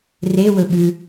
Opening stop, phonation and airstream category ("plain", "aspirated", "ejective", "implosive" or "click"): implosive